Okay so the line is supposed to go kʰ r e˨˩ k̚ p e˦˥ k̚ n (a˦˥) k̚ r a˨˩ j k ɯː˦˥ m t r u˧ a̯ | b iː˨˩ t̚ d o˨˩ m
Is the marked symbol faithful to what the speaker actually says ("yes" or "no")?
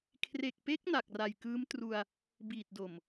no